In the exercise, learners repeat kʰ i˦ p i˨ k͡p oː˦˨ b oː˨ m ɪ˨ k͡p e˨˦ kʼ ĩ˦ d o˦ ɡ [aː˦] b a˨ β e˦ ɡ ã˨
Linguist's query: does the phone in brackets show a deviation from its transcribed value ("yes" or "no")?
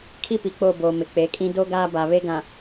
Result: no